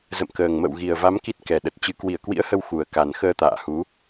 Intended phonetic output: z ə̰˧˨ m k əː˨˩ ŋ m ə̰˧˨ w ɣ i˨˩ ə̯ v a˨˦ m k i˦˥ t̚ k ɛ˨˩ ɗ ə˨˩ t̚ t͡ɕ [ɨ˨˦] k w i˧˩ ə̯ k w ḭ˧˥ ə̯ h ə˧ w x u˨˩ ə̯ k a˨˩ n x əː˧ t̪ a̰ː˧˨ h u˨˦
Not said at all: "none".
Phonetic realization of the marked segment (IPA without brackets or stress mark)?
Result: ɨ˨˦